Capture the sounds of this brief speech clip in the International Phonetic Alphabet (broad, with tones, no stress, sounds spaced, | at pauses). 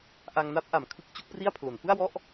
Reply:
ʔ a˧ ŋ n a˦˥ p̚ ʔ a˩˦ m kʰ ɯ˦˥ k̚ t͡ɕ u˦˥ k̚ p r i˥˩ a̯ pʰ l o˩˦ n f ɯ˥˩ a̯ w ɔ˥˩ ʔ